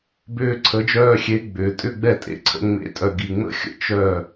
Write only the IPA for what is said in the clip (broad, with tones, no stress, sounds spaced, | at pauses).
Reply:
b ʏː˧ ǀʰ ə˩˥ d͡ʒ œː˧ xʲ e˩˥ ɡ͡b ʏː˩ tʼ ʏ˥˩ ɡ͡b ɛ˥˩ tʼ ḛ˥˩ ǀʰ ə̰˧ ŋ͡m ḛ˩˥ tʼ œ˩ ɡ i˩ ŋ͡m ə̰˥ xʲ ə̰˧ t͡ʃ œ˥˩